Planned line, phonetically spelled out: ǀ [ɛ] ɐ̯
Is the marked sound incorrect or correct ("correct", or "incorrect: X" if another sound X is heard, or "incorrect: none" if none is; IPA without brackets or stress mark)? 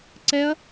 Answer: correct